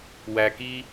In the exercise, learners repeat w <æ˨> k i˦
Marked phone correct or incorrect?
correct